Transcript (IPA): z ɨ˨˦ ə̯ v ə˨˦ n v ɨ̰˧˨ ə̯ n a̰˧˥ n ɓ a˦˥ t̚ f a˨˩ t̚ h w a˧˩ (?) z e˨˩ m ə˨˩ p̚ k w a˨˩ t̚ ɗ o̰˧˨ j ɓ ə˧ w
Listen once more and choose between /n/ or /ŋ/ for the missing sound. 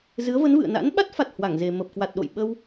ŋ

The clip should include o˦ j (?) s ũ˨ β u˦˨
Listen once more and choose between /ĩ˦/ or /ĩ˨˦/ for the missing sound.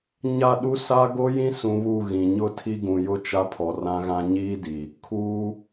ĩ˦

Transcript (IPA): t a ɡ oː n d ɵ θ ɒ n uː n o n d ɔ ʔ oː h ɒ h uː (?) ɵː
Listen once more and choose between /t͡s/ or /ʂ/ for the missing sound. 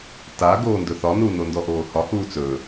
t͡s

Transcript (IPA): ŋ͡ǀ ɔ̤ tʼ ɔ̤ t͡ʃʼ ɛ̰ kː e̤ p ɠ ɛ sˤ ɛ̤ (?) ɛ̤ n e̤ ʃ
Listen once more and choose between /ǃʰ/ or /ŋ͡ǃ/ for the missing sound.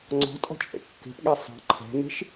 ǃʰ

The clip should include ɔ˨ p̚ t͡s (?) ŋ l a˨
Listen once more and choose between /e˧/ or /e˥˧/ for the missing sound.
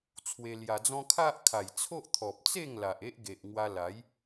e˥˧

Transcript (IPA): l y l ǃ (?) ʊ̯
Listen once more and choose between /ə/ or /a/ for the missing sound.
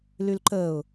ə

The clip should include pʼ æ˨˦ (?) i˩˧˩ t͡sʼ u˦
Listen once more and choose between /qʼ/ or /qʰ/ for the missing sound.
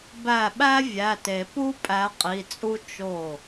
qʼ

